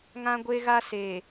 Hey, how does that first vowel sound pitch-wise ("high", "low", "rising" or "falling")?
high